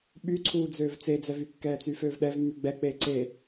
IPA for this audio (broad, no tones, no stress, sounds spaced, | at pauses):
ɓ y ǀʰ uː d͡z øː v t͡s e d͡z ɛ v y kː ɛː t͡s yː f øː v ɗ ɛ v mː y ɡ͡b ɛ k͡p eː ǀ e